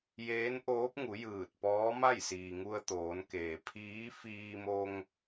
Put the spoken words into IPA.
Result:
jeː˧˥nʔoː˧˥p̚ŋu˩˧ jɯː˧˩t̚ pɔː˧˥ma˥˨jsiː˩ŋu˧ə̯ t̪oː˩˧nkeː˩ pʰiː˧˥fiː˧mo˧ŋ

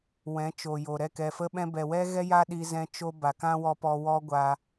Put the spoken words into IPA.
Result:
wɛ̃˨˦t͡ʃo˨jo˨ ɾɛ˦˨kɛ˨fə˦ɓɛ̃˦ bɛ˨wɛ˦ɣɛ˦ ja˦ɗi˧zɛ̃˧ t͡ʃo˦ ba˨kã˦wɔ˧ pɔ˧ wɔ˦ɡʷa˧

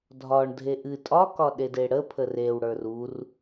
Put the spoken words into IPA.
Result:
dʱɒɳdʱe ʔɨ tʼɒkɒɗede ɽəpʰə rewɽə˞r ur

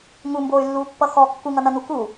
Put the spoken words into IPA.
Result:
ŋumboːy̯lːuːpːʌ xɔ kːuŋʌnʌnu ku

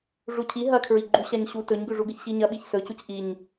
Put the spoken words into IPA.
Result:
ʐucʰi ɦɐkʰɹiɡ͡ǃu ɕaɲɕu tɵɲɡʉʐuɡɨç ɕiɲɐɓiç sɵcuc ʔiɲ

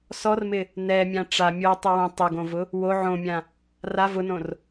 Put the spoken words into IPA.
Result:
sɔrmɪ | nɛmʲã ʈ͡ʂa mʲotˤi wõ tˤʊɡõvʊ | wo ʕõmʲã | ra vʊnõr

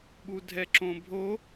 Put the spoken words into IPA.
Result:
ɓudʱɛǁõbʱo

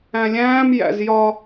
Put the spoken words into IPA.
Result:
æ̃lʲæ̃ːm jæ̰zjɒ

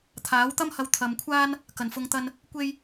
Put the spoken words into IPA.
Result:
t̪ʰaː˨˥wt̪ɐ˥mhɐ˧w t̪ʰɐ˨mkʷʰaː˥n | kɐ˨˩nfʊ˨˧ŋt̪ɐ˧n | kʷe˥j

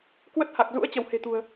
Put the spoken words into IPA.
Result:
kwə˦˥t̚ha˨˩k̚ zṵ˧˥ə̯ t͡ɕə˧˩whe̤˨˩t̪ṳ˨˩ə̯

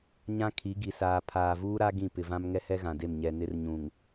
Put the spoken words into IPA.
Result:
ɲã˦ kʰi˨˦ɡi˨ saː˨pʰaː˨vuː˦ɾa˦ ɡĩ˦˨pɪ˨vã˦m ŋɛ˦hɛ˦ɣã˨de˦˨m ɲɛ˨nɪ˦rɲũ˨ŋ

